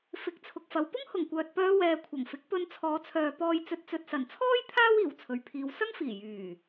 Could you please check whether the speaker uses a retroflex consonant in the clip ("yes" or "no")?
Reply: no